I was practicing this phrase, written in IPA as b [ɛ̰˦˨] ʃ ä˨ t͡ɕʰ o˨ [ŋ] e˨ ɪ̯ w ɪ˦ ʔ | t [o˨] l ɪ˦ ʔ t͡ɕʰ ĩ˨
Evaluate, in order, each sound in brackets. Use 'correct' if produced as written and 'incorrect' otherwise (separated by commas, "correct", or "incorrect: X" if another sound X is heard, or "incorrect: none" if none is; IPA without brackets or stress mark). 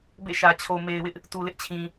incorrect: ḛ˦˨, incorrect: m, incorrect: u˨